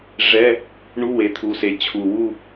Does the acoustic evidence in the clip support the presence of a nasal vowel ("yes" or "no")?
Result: no